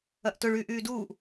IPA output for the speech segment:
ɐ ʔ t ʊ ɭ yː ʔ yː d uː ʔ

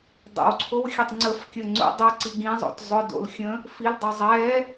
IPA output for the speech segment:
dˤ ə̰ w ǀʰ o w xʲ ɛ tˤ ŋ͡ǀ ə f kʲ ə ŋ͡ǀ ṵ dˤ u ǀ i ɡ ĩ zˤ o̰ t zˤ ʊ d o̰ l xʲ ə̃ | f i l dˤ ə zˤ ɛ

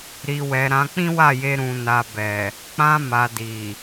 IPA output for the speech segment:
ɾ i˨ w ɛ˨ ɾ ã˧ k͡p ĩ˦ w a˦˨ j e˧ ɾ ũ˨ n a˨ b ɛ˨ | k͡p ã˧ m a˨ d i˨

